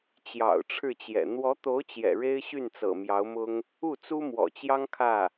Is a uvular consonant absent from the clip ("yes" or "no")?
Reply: yes